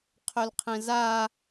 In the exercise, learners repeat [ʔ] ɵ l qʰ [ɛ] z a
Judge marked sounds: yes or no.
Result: no, no

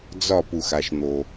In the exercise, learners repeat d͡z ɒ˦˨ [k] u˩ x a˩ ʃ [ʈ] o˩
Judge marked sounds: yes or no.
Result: no, no

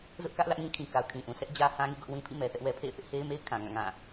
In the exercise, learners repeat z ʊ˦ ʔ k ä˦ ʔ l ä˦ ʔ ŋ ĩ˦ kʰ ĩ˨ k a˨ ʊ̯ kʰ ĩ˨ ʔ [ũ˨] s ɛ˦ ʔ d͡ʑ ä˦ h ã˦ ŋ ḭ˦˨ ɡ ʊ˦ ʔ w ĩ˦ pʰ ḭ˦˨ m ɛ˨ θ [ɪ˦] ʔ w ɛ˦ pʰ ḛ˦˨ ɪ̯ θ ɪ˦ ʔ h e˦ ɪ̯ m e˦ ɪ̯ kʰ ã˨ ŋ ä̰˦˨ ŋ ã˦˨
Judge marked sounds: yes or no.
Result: yes, no

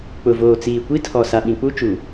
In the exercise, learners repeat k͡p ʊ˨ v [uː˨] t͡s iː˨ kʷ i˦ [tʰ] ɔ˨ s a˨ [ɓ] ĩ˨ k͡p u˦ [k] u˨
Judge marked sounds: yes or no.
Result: no, yes, yes, no

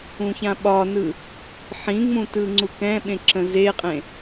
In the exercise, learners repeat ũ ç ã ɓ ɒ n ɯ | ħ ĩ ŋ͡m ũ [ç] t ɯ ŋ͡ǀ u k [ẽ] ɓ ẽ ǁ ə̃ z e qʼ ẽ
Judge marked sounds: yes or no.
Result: no, no

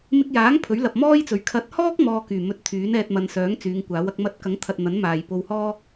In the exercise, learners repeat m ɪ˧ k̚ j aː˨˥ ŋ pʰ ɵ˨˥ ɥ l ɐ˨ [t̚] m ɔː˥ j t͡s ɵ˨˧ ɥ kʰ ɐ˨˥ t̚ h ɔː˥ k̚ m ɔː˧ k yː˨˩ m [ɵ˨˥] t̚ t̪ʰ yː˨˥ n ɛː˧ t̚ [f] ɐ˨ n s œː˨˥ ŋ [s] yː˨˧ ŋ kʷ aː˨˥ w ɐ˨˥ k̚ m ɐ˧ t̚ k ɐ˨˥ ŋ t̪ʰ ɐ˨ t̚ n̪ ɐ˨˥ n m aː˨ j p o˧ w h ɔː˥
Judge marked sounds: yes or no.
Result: no, yes, no, no

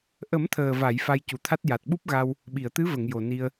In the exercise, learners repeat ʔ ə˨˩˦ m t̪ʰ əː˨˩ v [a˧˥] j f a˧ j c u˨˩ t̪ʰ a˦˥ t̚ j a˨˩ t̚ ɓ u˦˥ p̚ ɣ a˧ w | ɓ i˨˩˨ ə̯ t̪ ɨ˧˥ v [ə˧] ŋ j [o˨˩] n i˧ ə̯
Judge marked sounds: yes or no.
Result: no, no, yes

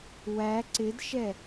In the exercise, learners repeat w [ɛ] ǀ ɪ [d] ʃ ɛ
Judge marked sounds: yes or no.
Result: no, yes

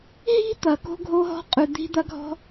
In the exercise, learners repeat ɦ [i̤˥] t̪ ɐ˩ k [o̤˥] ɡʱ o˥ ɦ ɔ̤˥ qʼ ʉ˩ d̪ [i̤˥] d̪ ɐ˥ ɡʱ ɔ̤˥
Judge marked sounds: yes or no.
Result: yes, yes, yes

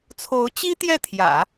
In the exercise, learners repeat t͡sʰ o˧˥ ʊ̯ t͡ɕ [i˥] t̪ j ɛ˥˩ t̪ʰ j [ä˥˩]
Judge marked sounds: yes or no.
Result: yes, no

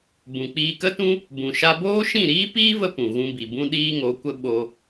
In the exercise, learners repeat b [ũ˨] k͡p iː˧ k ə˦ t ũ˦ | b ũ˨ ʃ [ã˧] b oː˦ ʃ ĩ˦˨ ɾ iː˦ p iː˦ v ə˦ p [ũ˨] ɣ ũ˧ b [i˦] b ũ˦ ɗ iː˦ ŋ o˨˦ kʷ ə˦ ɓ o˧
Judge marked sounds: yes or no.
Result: yes, no, yes, no

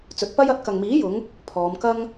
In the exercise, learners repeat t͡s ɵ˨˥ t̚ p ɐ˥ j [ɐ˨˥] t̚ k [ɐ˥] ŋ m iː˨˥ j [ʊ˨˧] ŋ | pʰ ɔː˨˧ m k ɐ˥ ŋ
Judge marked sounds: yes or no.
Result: yes, no, yes

